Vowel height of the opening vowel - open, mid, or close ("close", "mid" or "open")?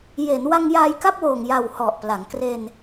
mid